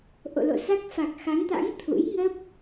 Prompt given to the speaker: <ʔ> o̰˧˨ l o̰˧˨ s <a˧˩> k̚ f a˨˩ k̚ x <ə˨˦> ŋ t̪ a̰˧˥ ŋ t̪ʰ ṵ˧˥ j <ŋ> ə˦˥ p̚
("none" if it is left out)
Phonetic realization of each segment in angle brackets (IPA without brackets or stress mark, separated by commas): ʔ, a˦˥, a˨˦, ŋ